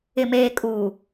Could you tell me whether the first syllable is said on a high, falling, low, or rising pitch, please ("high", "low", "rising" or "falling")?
low